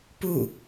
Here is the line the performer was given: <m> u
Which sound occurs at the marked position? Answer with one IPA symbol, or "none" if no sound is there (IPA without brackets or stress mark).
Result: p